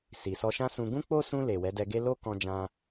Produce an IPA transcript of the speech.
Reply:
s i˨ s ɔ˧ ʃ ã˦ s ũ˧ ɡ ũ˦ k͡p o˦ s ũ˧ l e˨ w ɛ˨˦ d ɛ˧ ɡ e˦ l o˦ k ɔ̃˧ d͡ʒ ã˧

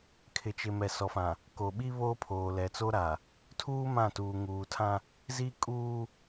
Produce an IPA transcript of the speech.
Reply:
kʰ ɪ˨ t͡ʃ ɪ˨ m ɛ˨ s ɔ˨ f ã˨ | k o˨ ɓ i˦ β oː˦ pʰ oː˨ l ɛ˨ t͡s o˦ ɾ a˨ | tʰ uː˦ m ã˦˨ t uː˨ ŋ uː˨ tʰ ã˦ | z i˦ kʼ uː˦

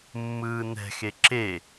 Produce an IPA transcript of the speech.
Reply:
mː ɯː n ɛ̤ x e ǁ e

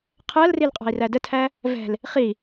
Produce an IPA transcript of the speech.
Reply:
qʰ ɜ l r i l qʼ ɑ̤ i̯ r æ d ə tʰ æ | v ɛ̤ l | χ i

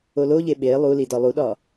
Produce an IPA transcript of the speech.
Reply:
o l o ʎ e ɓ e lˠ u l i d ɒ lˠ u ɗ ɒ

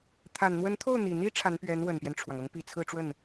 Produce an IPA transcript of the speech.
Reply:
t̪ʰ a˨˩ n n̪ w ə˧˥ n t̪ʰ o˥˩ ʊ̯ n̪ i˨˩ n̪ i˧˥ ʈ͡ʂʰ a˧˥ n p ɥ ɛ˧˥ n w ə˨˩ n p j ɛ˦ n ʈ͡ʂʰ w ɑ˩ ŋ ɤ˧˥ ŋ p i˨˩ t͡sʰ ɹ̩˥˧ ʈ͡ʂ w ə˥˩ n

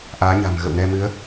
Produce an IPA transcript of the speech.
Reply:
ʔ aː˨˦ ɲ a̤˨˩ m ɣ ə̰˧˨ w n ɛ˧ m ɨ˨˦ ə̯

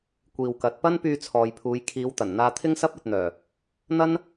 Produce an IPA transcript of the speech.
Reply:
kʷ iː˨ w k ɐ˨˥ t̚ p ɐ˥ n p yː˧ t͡sʰ ɔː˨ j pʰ uː˨˧ j kʰ iː˨˧ w t̪ ɐ˨˩ n n̪ aː˧ t̪ʰ ɪ˥ ŋ s ɐ˥ p̚ ɐ˧ t̚ n̪ œː˨˩ | n̪ ɐ˥ n

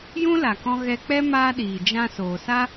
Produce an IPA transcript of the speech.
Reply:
j ũ˦ l a˨ k ɔ̃˧ ɣ ɛ˧ k͡p ɛ˦ m aː˦ ɗ iː˨ d͡ʒ ã˧ s oː˨ s a˦

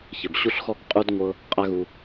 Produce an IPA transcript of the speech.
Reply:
ç ɘ˧˩ b ɕ u˥ ɬ x ɔ˥ k qʼ u˥ d ŋʷ ɤ˥ | qʼ a˥ ɣ u˧

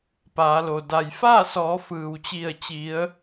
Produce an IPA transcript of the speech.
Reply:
p aː˩˧ l o˩ d a˩ j f aː˥˨ s ɔː˩˧ f ɯː˩ w t͡ɕ i˧˩ ə̯ t͡ɕ i˩˧ ə̯

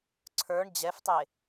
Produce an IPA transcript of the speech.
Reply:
ǀʰ ə˞ ɳ d͡ʑ ɛ f tˤ e

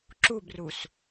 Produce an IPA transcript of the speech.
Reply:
ǁ u b r u s

